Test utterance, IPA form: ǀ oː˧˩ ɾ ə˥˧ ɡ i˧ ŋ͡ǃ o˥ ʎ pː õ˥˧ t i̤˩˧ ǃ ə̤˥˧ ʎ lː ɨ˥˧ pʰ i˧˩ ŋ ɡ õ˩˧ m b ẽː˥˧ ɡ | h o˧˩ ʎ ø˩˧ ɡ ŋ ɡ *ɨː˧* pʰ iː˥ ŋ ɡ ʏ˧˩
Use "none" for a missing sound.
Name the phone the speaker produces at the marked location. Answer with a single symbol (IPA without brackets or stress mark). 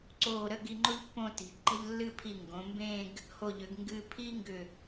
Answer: ɨː˧